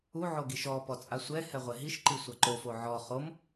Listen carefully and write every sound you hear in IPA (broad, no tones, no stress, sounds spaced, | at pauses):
u ʕ o ɡ i ʃ ɔ p ɔ t͡sʼ a sʷ ɛ h ɛ ʁʷ ɛ ɦ i ʃ ǃ i sʷ a ǃ o f o ʕ ɔ χ o m